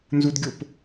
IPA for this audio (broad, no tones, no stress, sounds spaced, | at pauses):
n z u d ɡʲ o p